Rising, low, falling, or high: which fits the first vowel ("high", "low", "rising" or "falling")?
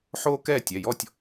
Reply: high